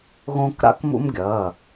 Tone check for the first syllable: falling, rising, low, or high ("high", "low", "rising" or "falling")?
high